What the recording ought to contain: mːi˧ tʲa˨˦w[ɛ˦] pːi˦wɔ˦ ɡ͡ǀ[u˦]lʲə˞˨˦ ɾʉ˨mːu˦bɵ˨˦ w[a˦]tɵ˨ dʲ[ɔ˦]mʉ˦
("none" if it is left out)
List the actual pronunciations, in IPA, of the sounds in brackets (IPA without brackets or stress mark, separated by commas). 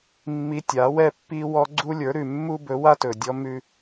ɛ˦, u˦, a˦, ɔ˦